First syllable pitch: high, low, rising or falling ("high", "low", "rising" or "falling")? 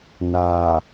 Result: low